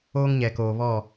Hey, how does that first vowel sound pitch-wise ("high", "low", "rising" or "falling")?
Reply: high